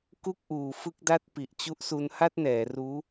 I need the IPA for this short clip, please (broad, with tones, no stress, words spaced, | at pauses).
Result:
ku˥˩k̚ʔuː˨˩fɯ˥˩k̚da˥˩t̚ pi˨˩ʔt͡ɕu˦˥ʔsu˧n ha˥˩t̚nɛː˩˦ ruː˦˥